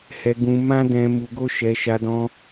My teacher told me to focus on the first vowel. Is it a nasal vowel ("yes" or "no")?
no